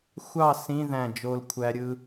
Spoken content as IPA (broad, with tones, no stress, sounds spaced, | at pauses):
xʷ ɑ˥˨ s ĩ˧˥˧ ð æ̃˧˩ d͡ʒ o˧ l kʷʰ æ˧ ɾʲ ɯ˧